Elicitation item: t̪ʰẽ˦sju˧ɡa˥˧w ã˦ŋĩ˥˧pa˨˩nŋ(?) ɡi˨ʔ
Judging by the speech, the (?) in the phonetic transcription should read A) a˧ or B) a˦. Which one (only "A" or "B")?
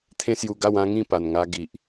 A